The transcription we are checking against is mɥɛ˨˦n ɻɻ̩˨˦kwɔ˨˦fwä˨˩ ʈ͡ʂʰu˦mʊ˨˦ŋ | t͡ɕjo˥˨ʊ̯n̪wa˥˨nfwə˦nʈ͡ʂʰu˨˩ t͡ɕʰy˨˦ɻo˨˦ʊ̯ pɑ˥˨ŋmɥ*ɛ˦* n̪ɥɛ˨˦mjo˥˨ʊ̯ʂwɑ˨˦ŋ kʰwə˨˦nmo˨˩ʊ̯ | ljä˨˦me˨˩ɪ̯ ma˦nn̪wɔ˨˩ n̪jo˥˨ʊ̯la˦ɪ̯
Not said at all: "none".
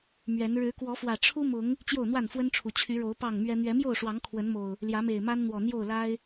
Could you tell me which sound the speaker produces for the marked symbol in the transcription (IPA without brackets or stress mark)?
ɛ˦